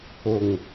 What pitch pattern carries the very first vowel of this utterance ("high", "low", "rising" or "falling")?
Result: low